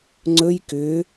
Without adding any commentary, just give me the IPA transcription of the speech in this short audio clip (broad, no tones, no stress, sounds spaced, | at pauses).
ŋ͡ǀ ɵ j k ʏ